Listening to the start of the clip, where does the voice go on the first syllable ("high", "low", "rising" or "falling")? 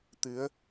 rising